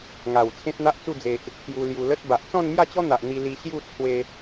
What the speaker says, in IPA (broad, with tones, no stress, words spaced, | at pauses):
ŋa˨˩w t͡sʰẽ˦t̚n̪a˦ʔt͡su˥˧d͡ze˨ʔ | kju˧lju˧ lə˦t̚ba˨ʔ t͡sɔ̃˥˧nmja˥˧t͡ɕɔ˦n̪a˨ʔ n̪i˧li˧ɕju˥˧ t͡sʰwe˧